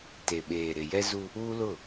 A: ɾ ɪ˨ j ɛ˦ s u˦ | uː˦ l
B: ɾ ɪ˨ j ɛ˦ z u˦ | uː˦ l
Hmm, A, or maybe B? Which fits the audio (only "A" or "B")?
B